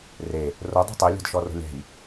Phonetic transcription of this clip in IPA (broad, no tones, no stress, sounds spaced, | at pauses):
r e | r o dˤ ɛ̤ tˤ i lʲ ɔ̤ d ʃ ɔ r o̤ lʲ ɛ̤ j